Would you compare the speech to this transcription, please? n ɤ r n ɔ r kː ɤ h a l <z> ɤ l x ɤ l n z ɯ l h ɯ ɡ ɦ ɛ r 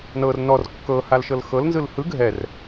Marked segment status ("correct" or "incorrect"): incorrect